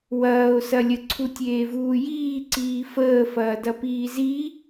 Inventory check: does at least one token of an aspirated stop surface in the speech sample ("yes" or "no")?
yes